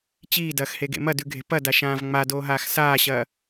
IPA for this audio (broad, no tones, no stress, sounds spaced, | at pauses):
t͡ɕ iː d ɐː x h e ɡ ḛ m ɐ d ʉ ɡʱ e̤ p ɐ d a ʃ ãː v ŋ͡m a d oː ɦ aː x s aː ɕ ɐː